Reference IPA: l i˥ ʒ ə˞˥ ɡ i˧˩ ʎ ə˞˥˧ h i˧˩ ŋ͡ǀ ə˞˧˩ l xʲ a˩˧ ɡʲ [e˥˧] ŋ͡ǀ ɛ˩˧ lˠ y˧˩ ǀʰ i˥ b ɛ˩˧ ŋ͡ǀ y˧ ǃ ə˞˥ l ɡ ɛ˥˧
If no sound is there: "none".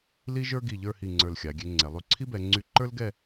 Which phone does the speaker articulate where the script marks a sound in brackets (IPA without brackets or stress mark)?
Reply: e˧